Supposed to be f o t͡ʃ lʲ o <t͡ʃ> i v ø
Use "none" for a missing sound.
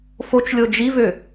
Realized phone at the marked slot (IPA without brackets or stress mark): d͡ʒ